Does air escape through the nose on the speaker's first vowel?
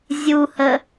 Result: no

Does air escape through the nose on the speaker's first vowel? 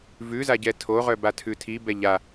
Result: no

